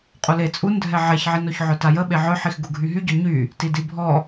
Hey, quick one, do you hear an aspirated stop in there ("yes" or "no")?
no